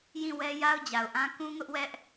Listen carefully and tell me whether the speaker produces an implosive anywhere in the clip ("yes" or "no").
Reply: no